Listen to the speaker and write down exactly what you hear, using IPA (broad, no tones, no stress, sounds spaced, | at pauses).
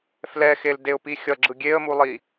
f l ɛ x e l d e ʊ̯ p i xʲ ʌ ɡ͡ǁ ɯ ɡʲ e ə̯ m u lˠ i